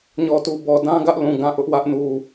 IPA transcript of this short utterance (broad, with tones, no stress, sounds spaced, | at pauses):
ɲ ɔ˨ t u˨ b ɔ˨ d ã˦ ɡ ä˦ ʔ l ũ˨ ɡ ã˦˨ ʔ ʊ˦ ʔ w ä˦ ʔ n u˨